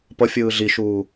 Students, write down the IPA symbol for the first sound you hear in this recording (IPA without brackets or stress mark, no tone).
p